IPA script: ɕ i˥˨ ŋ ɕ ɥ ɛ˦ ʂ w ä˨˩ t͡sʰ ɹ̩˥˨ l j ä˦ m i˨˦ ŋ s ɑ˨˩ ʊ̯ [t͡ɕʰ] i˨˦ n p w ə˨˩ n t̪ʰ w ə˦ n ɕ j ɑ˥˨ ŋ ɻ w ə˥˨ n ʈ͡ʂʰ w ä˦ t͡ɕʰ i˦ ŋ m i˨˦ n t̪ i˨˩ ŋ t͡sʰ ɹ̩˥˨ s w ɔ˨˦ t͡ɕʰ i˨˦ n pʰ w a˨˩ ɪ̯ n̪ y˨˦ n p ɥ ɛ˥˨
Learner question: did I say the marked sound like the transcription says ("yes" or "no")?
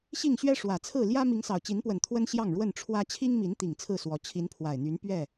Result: no